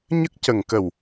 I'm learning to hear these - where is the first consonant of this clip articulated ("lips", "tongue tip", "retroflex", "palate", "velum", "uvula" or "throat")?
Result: palate